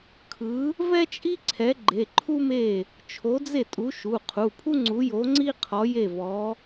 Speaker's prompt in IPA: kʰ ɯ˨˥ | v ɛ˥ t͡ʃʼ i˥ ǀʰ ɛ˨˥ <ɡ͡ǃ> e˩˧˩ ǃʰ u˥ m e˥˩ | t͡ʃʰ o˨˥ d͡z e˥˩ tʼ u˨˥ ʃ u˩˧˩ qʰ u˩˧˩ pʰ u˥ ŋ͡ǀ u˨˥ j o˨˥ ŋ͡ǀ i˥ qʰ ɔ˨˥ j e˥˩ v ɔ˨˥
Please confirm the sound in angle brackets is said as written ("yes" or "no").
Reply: yes